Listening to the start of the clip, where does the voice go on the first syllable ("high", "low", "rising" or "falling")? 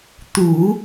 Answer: low